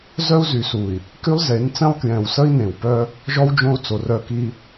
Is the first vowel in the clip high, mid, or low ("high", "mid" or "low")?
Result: mid